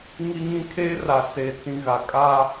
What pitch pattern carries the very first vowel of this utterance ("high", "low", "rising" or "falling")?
high